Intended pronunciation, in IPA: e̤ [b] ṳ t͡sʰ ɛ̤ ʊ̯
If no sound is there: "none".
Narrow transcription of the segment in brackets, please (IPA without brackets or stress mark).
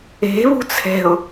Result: β